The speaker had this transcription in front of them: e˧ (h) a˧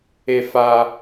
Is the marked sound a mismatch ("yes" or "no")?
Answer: yes